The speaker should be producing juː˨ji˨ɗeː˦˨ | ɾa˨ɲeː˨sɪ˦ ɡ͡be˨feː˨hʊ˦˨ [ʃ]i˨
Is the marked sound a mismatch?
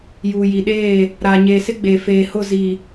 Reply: yes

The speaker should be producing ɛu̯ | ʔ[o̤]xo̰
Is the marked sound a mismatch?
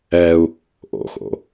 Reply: yes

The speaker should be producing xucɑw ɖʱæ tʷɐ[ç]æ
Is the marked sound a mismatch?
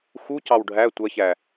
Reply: no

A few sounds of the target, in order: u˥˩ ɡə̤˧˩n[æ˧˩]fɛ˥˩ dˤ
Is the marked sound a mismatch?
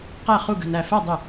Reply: no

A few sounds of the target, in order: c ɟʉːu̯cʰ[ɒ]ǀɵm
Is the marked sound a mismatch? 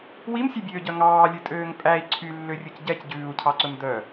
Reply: yes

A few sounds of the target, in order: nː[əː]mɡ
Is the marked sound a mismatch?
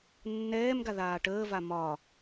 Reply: yes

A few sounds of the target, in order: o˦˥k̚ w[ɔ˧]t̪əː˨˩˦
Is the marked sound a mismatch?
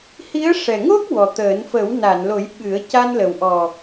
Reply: yes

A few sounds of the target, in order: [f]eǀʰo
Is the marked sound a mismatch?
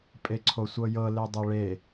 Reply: yes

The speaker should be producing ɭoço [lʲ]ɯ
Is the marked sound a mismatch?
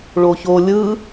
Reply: no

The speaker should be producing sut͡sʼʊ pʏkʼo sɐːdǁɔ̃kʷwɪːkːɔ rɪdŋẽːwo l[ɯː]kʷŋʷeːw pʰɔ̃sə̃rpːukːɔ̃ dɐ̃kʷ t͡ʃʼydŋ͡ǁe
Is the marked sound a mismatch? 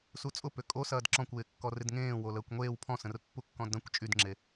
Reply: yes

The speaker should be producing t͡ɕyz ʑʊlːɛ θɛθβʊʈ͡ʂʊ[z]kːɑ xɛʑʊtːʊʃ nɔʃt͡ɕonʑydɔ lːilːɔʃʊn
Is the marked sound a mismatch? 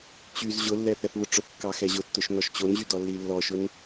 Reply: yes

